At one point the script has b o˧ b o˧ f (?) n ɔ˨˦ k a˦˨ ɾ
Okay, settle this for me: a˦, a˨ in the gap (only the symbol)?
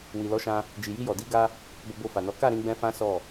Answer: a˨